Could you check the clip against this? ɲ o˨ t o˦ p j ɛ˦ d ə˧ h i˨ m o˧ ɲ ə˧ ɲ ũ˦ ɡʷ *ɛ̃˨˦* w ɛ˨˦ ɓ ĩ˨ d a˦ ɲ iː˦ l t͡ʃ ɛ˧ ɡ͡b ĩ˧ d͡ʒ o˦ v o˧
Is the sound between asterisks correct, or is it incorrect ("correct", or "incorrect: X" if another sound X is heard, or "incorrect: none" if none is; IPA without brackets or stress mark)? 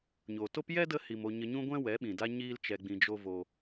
incorrect: ɛ̃˦